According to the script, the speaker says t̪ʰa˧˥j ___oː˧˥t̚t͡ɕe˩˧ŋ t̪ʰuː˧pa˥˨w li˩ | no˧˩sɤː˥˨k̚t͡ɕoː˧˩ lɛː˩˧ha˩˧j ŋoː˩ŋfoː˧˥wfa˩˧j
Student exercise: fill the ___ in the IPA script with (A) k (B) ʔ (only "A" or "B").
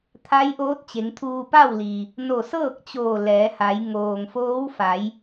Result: B